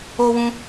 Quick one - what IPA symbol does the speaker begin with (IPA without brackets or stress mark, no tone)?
o